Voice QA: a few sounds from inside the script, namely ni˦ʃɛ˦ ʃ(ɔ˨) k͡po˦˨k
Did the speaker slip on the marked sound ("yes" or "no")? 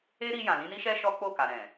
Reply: yes